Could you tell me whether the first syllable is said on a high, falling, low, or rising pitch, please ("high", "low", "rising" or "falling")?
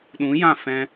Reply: rising